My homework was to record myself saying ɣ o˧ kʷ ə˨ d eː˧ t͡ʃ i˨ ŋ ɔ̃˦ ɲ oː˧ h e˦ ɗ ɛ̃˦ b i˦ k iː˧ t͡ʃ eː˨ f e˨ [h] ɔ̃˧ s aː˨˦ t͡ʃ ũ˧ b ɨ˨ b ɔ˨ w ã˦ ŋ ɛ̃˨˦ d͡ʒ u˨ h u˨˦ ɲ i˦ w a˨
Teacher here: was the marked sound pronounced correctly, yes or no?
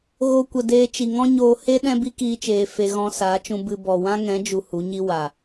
no